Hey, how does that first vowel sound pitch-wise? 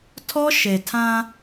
high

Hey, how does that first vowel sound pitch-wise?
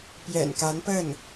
low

